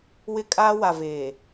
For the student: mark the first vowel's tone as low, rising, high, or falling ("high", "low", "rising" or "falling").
high